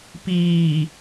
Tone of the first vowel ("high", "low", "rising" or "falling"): low